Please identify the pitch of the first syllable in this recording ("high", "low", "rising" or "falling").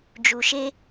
low